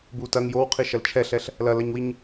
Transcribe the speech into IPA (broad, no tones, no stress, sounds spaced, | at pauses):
b u t ɐ ŋ j o w qʰ i ʃ ɐ l t͡ʃʰ ɛ ɬ ɛ ɬ | l ɐ l ɐ ɲ w i ɲ